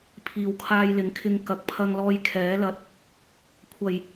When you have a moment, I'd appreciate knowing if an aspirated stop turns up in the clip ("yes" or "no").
yes